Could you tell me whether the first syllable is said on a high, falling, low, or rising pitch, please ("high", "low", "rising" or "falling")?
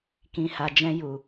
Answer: low